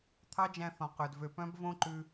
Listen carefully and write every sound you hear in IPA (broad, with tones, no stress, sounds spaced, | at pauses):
t̪ʰ ɑ˦ d͡ʒ æ̃˧ θ ɔ̃˨ q œ˨ d v ø˨ p œ̃˦ b v õ˦ ǃ ʉ˧